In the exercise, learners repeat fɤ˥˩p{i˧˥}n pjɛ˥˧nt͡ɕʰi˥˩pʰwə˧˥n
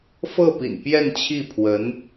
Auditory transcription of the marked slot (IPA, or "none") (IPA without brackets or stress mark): ḭ˨˩